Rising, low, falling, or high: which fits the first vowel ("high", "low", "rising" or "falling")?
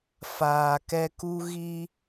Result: low